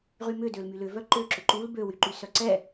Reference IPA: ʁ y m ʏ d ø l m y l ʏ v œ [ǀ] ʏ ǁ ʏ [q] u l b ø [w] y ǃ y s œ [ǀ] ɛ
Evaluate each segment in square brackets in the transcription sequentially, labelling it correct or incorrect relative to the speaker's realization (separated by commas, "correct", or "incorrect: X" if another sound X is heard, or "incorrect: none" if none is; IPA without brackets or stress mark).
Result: incorrect: ǃ, incorrect: ǃ, correct, correct